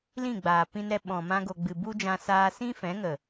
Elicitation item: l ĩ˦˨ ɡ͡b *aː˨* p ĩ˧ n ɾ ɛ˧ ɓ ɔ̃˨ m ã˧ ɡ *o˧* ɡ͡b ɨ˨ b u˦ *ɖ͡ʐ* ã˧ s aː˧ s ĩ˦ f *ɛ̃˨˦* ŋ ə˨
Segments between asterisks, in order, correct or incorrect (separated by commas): correct, incorrect, incorrect, correct